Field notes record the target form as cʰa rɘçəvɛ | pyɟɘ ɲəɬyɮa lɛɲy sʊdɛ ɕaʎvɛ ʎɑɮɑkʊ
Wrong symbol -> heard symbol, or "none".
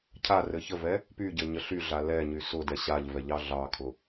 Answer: k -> kʰ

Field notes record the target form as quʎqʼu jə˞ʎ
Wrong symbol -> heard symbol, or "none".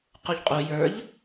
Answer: none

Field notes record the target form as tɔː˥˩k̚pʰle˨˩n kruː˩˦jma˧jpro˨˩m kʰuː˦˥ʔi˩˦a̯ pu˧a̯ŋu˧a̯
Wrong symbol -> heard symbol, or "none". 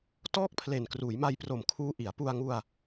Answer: none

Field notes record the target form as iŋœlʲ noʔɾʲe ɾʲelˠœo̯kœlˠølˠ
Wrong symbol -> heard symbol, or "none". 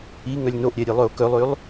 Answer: none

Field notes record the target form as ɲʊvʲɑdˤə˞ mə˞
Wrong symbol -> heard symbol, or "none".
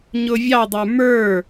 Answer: none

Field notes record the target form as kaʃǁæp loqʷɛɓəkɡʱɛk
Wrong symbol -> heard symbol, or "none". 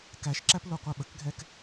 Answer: a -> æ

